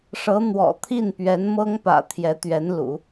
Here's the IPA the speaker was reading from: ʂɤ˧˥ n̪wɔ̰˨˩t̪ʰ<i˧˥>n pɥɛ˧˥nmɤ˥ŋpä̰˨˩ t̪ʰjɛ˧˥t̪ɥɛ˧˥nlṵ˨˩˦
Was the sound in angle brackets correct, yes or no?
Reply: no